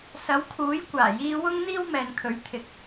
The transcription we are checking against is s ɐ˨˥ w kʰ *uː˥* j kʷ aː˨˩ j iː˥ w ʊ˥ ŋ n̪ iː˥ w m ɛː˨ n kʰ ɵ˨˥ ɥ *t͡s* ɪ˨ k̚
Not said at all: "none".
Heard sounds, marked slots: uː˨˥, t̪ʰ

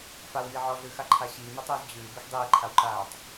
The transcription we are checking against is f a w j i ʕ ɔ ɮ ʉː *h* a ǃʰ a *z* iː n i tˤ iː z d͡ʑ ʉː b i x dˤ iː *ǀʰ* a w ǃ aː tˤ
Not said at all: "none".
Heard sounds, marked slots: x, ɕ, ǃʰ

